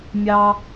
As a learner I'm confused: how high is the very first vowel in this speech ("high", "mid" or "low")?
low